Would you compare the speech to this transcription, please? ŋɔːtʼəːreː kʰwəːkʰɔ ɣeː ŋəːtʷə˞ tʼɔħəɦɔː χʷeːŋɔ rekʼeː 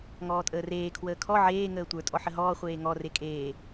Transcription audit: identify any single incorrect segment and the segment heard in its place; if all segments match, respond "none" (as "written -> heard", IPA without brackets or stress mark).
ɣ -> ʕ